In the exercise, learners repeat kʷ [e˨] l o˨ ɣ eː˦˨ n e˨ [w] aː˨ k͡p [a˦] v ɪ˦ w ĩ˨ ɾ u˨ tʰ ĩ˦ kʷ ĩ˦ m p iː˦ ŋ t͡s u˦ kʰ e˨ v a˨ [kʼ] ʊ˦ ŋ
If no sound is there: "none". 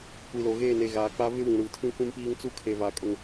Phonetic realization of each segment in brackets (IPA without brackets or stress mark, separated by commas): i˨, ɣ, a˦, kʼ